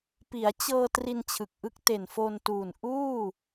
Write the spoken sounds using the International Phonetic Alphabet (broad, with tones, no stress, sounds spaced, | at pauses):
p i˩˦ a̯ t͡ɕ ɤː˧ t r i˧ n t͡ɕʰ ɯ˨˩ k̚ ʔ ɯ˦˥ k̚ t e˨˩ n f o˧ n t uː˨˩ n ʔ uː˥˩